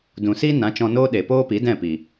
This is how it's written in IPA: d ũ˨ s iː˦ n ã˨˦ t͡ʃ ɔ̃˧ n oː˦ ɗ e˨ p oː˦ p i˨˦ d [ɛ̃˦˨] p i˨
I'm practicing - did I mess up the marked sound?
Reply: no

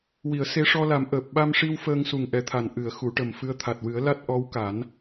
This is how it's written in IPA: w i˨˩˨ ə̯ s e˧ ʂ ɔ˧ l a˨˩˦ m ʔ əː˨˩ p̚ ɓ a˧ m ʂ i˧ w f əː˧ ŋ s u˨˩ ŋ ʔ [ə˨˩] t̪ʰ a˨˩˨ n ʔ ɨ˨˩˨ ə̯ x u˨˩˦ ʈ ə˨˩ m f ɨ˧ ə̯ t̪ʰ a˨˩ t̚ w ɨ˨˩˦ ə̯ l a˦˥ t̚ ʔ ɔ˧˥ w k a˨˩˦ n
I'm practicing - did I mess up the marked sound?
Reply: yes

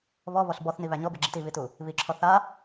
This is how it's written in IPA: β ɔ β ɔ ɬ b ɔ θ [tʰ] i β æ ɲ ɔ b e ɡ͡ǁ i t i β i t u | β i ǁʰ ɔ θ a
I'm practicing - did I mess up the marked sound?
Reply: yes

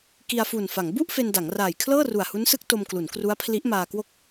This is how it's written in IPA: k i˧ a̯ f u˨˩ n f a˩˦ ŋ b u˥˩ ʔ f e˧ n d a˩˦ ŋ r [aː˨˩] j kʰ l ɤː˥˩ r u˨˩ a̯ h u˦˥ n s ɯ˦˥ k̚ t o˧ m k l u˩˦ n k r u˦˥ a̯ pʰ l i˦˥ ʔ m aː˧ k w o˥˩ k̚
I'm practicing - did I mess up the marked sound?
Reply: no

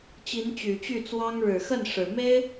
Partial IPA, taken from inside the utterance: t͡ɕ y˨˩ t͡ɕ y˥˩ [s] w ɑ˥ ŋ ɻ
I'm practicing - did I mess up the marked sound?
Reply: yes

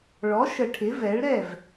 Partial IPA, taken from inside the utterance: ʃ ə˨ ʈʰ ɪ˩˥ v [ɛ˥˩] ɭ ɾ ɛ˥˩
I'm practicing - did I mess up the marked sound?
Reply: yes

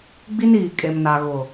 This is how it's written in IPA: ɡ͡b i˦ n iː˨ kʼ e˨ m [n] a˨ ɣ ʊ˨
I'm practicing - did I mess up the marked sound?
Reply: no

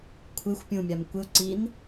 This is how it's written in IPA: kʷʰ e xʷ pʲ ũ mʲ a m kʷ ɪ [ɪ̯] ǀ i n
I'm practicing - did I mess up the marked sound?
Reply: yes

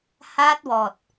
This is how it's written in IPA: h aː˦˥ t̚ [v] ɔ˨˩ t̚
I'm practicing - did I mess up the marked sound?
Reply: yes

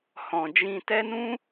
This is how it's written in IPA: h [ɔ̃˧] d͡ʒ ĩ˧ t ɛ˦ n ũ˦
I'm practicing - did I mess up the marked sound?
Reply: no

